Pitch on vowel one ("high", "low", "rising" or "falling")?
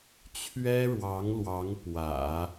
high